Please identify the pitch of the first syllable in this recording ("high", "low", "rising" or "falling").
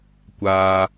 low